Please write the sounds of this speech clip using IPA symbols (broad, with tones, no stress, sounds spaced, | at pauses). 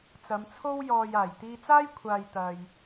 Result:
t͡s ɐ˨˧ m t͡sʰ o˥ w j ɔː˨ j aː˨˩ j t̪ iː˧ t͡s aː˥ j kʷʰ aː˨ j t̪ ɐ˨ j